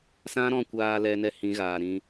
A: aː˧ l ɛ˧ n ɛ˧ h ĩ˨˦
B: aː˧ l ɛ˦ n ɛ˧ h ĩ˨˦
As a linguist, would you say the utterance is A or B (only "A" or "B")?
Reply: A